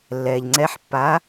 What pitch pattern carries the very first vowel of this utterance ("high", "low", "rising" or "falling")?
low